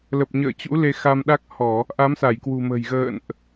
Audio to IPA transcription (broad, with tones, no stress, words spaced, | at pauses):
lə˨˩p̚ɲə̰ː˧˨t͡ɕṵ˧˥ le˧xa˧mɗa˦˥k̚ hɔ˧˩˨ | ʔa˨˦msa˧˩jkwṳ˨˩ mə̤˨˩j ɣə̰ː˧˨nʔ